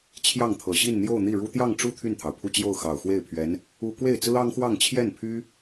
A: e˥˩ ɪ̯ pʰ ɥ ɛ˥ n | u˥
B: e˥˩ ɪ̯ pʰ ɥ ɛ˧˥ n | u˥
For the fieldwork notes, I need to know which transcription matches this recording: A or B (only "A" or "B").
B